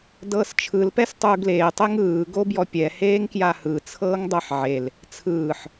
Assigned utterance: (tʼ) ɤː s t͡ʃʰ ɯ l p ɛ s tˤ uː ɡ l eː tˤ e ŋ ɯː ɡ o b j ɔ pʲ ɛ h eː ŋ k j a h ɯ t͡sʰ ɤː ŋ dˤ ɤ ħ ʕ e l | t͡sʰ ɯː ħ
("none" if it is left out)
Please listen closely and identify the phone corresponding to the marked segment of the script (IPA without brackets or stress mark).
d